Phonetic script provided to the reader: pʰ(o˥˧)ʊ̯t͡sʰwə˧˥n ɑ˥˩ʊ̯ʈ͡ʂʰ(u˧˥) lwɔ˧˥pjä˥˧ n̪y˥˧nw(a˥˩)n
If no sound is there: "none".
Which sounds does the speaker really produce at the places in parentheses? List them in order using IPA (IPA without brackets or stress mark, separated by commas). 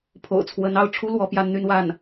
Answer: o̰˨˩, u˥, a˥˩